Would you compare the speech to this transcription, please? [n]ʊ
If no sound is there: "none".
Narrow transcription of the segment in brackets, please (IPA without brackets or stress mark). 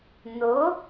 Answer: n